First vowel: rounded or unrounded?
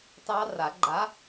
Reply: unrounded